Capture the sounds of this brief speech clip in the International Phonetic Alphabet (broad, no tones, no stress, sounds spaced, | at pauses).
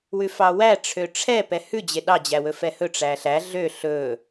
w ʉ f ɑ w æ ʈ͡ʂʰ ø ʈ͡ʂʰ ɛ p ɛ h ʉ d͡ʑ e ɗ ɑ d͡ʑ æ w ɵ f ɛ h ɵ ʈ͡ʂ æ ɬ æ ɮ ø ɬ ɵ